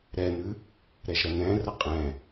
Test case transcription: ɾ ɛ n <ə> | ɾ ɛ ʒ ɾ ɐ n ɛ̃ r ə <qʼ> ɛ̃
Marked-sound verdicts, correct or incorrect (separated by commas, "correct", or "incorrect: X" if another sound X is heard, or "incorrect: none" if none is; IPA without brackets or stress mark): incorrect: ʉ, correct